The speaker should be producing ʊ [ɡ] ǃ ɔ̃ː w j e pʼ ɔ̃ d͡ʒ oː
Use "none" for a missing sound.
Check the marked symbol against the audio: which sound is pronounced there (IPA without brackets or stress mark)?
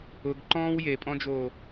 ɡ